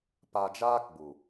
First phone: p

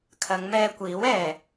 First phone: kʰ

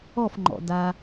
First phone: ɔ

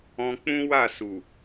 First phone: ɔ̃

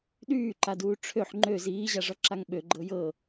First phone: ɗ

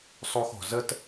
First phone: sˤ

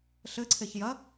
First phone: ɬ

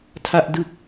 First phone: tʰ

